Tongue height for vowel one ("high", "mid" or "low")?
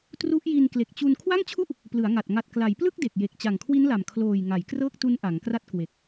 high